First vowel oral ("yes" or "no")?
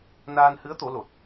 yes